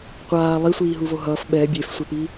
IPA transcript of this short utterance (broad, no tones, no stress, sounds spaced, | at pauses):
qʷ aː lˠ i sʷ iː ɦ u v o ɦ ʌː f ɓ ɛ bʲ e f sʷ ɛ p iː